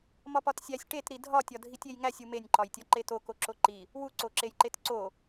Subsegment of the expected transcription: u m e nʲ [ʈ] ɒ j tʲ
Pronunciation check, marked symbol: incorrect: ǃ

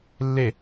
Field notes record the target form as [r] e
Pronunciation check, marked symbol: incorrect: lː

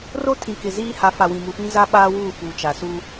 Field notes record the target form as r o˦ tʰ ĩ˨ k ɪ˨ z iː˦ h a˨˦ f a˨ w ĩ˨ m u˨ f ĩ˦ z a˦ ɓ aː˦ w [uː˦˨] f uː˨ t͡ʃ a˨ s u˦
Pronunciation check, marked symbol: correct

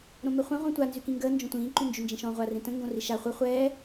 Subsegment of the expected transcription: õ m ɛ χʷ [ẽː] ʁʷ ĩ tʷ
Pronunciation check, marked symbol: incorrect: ẽ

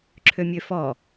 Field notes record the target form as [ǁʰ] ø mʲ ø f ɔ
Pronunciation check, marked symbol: correct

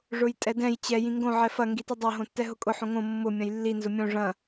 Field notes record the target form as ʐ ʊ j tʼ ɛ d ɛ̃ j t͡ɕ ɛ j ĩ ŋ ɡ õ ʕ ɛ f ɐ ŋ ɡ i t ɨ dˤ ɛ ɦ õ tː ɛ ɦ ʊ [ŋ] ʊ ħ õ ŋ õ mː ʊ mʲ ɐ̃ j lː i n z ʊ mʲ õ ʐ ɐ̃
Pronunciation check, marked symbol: incorrect: kʼ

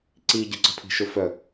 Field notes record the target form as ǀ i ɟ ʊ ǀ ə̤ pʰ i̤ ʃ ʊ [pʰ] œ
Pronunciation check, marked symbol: incorrect: f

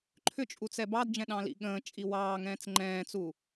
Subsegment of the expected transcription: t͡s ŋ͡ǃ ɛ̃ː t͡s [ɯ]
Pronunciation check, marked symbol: incorrect: u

